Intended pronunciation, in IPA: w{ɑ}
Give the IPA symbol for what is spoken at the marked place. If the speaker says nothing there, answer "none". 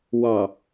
ɑ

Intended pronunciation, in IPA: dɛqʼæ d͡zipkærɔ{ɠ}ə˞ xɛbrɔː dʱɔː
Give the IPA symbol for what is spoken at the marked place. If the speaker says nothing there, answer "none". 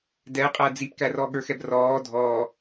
ɠ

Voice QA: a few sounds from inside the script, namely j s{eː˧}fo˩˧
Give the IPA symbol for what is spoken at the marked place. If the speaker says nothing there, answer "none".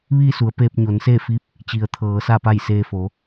eː˧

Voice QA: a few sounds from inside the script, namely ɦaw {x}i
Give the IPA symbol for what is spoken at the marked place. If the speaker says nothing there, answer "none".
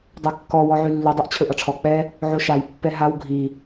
ɡʱ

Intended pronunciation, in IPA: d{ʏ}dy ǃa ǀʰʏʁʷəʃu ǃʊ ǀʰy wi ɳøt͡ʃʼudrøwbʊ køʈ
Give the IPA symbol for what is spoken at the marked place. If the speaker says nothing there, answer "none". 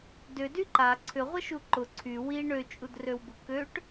ʏ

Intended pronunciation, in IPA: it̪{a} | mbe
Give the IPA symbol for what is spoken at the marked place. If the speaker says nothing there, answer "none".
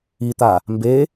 a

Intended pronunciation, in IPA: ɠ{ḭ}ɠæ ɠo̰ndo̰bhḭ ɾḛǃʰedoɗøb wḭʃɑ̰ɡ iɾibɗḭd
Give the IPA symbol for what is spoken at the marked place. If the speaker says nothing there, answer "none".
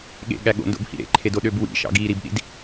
ḛ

